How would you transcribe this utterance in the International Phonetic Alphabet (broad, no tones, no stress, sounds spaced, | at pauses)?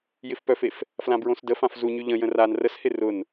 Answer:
j ɪ f p œ f e f | f l ã b ɹ õ s d ə f ã f z u ɲ y ʎ ə̃ j ə̃ r a n r ə s h ɪ r ʊ n